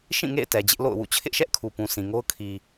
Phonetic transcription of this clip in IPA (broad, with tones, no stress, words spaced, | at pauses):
ʃĩ˦˨ŋḛ˦˨ɪ̯ tɛ˨d͡ʑɪ˦ʔ lo̰˦˨ʊ̯wṵ˦˨ t͡ɕʰɪ˦ʔʃɛ˦ʔ kʰu˨pũ˨ sʰĩ˨ŋo˦ʊ̯ kʰi˨